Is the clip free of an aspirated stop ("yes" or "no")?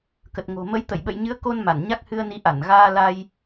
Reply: yes